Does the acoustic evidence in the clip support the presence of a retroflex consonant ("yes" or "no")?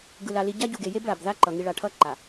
yes